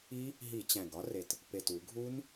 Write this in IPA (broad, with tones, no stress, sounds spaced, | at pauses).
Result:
i˦˥ | ɦ i˧˩˧ t͡ɕ æ̃˨˩ ɡ ɒ˦˥ r e˨˩ t | p e˨˩ t u˧˩˧ ɡʱ u˦˥ n